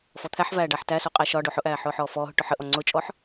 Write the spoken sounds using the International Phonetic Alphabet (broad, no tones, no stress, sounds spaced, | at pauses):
f ɔ t̪ʰ æ ħ v æː ɖ a ħ t æ s o qʼ æ ʃ ɒ ɖ o ħ ʊ ʔ æː ħ ʊː ħ ɔː f ɔː ɦ ʊ ʈ ʊ ħ ə ʔ ɔ ŋ͡ǀ ʊ t͡ʃʼ ɔ ħ